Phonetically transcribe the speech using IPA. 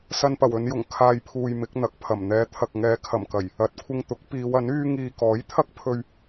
s ɐ˨ n p ɐ˨˩ w ɵ˨˧ n j ʊ˨˩ ŋ kʰ aː˨ j pʰ uː˨ j m ɪ˨˥ k̚ n̪ ɐ˨˥ k̚ pʰ ɐ˨˩ m n̪ ɛː˨ t̪ʰ ɐ˨ k̚ ŋ ɛː˨˧ kʰ ɐ˨˩ m k ɐ˨˩ j | ɐ˨ t̚ kʷʰ ɪ˧ ŋ t̪ ʊ˨˥ k̚ p iː˨˧ w ɐ˨˥ n yː˥ ŋ iː˧ k ɔː˨˥ j t̪ʰ ɐ˥ k̚ pʰ ɵ˧ ɥ

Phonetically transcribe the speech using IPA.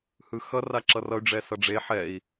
h ɯ x ʌ r a ǁ ʌ r ʌ y̯ ɖ͡ʐ ɛ s ʌ ɖ͡ʐ e ħ ɛ i̯

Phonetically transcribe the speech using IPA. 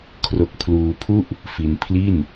kʰ r o˦˥ k̚ pʰ l uː˧ pʰ u˥˩ ʔ | f i˧ n pʰ l i˥˩ n

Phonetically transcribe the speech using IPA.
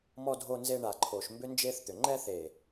m ɔ˨ dʱ o˨ n z e˨ ɳ a˨ ǃʰ o˨ ʃ m b ʏ˦ n d͡ʒ e˦ θ t̪ ʏ˨ ŋ͡ǃ ɛ˦ θ e˨

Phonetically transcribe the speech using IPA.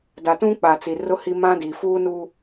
d a˨ t ũ˦ k͡p a˨ t͡s i˨ r ʊ˦ h i˦ m ã˦ d iː˨ f uː˦ n u˦

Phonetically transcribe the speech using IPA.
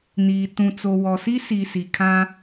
n iː˨ t ũ˨ t͡s o˨ w ɔ˨ s i˦ s i˨ s i˨ kʰ ã˦

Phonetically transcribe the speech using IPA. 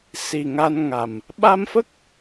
s i˨˩ ŋ a˧ n ŋ a˨˩ m | ɓ a˧ m f ə˦˥ k̚

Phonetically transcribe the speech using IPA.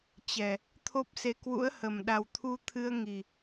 t͡ɕ ɛ˨˩ | t̪ʰ o˦˥ p̚ s e˧ k w ṵ˧˥ ə̯ h ə˨˩ m ɗ a˨˩ w t̪ʰ u˧ t̪ʰ ɨ˧ ə̯ ŋ i˨˩

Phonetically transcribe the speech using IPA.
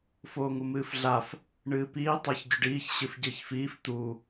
f oː ŋ u m ɨː f ɮ a f | ɳ ɨː p iː tˤ a ç ɟ ɵ ɖ iː ç ɕ ɨ f ɟ ɨː ç f iː f t̪ u

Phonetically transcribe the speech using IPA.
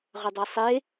ʁ ʏ dˤ ɛ sˤ e

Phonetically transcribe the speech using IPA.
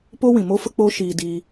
p o˦ w ĩ˨ m o˦ f ə˦ k͡p o˦ ʃ iː˧ d iː˧

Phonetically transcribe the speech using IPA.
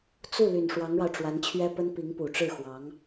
t͡s u˥˩ l y˨˩ n ʂ w ɑ˧˥ ŋ ɻ ɑ˧ ʊ̯ ʈ͡ʂ w a˧˥ n t͡ɕʰ ɥ ɛ˥ p ə˥ n p i˧˥ ŋ p u˨˩ ʈ͡ʂ ɻ̩˥˩ x w ɑ˧˥ ŋ

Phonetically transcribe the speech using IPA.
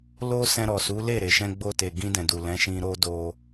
l o˧ s ɛ̃˧ ɾ ɔ˨ s u˨˦ l e˦˨ ɾ e˨ ʃ ɛ̃˧ ɡ͡b o˧ t e˨ ɡ ĩ˧ d ɛ̃˨ d u˨ l ɛ̃˨˦ ʃ ĩ˧ ɾ o˧ d o˧

